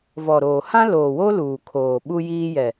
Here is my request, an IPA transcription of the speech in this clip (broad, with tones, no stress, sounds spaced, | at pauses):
v ɔ˨ ɾ oː˨ h ã˦ l oː˨ w o˦ l uː˨ kʰ oː˨ ɓ u˦ j iː˦ j ɛ˨